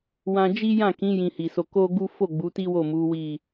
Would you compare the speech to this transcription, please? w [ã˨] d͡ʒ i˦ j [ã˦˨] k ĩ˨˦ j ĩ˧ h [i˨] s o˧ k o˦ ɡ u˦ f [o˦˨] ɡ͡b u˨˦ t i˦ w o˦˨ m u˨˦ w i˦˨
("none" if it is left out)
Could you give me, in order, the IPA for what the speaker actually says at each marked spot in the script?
ã˧, ã˦˨, i˨, o˦˨

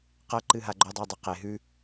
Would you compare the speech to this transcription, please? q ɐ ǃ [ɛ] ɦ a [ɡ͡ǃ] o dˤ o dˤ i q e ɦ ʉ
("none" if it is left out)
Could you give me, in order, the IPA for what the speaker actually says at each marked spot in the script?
ɨ, ɡ͡ǃ

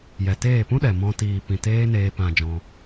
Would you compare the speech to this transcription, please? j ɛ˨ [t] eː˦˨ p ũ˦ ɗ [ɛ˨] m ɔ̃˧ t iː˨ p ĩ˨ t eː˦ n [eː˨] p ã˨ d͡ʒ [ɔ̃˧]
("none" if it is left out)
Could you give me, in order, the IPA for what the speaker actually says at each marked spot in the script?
t, ɛ˨, eː˧, ɔ̃˧

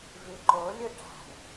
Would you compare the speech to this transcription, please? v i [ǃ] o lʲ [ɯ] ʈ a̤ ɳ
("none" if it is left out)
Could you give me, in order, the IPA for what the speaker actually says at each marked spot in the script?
ǃ, ɯ

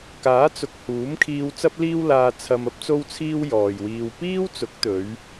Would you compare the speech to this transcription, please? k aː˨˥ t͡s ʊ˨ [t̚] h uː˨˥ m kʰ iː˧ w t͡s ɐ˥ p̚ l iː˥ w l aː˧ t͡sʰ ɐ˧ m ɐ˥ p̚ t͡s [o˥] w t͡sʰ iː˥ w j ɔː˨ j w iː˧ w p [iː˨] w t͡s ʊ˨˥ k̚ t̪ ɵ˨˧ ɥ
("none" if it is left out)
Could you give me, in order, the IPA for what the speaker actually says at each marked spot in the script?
k̚, o˥, iː˥

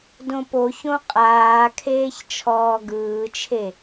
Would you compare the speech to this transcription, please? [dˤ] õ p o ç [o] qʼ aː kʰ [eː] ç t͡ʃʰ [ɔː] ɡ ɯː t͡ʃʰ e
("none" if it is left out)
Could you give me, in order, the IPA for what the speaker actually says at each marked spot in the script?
d, õ, eː, ɔː

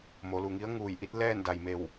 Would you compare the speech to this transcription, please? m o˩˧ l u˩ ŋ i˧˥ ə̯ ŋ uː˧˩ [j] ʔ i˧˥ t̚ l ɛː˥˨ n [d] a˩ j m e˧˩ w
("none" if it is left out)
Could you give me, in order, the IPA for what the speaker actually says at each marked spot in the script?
j, d

